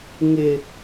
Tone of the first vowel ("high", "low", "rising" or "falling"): low